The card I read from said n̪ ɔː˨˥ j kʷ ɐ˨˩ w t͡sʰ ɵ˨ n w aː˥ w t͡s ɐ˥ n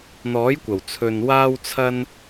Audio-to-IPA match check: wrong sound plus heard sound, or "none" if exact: t͡s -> t͡sʰ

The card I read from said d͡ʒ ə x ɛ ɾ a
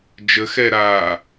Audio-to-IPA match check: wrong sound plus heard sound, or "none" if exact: none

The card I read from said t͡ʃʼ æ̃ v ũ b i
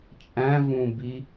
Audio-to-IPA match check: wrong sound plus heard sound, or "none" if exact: none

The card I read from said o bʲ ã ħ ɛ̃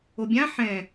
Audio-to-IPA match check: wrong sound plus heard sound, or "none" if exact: none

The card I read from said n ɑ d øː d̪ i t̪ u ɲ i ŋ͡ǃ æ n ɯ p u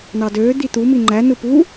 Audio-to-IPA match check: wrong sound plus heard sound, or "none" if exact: ɲ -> m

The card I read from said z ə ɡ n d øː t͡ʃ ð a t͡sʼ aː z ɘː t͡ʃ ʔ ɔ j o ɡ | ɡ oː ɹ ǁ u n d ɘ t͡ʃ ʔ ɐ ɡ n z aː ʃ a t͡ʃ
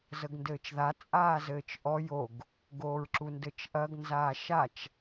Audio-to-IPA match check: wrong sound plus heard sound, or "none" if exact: øː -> ɘː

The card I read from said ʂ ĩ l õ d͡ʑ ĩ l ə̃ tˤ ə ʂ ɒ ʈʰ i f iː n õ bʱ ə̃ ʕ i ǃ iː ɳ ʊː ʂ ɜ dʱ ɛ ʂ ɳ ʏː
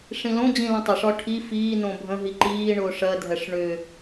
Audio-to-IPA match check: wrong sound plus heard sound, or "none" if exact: ʕ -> ɦ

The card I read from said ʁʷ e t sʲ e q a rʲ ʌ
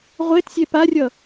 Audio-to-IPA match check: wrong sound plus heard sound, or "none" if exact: q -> p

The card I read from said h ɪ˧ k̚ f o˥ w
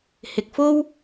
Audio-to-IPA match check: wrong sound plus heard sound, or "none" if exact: none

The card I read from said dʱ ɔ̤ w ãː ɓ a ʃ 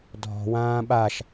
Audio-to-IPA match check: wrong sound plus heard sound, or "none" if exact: none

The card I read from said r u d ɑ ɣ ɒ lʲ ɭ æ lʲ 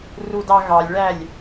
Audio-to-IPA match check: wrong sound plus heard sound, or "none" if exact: ɒ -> ɑ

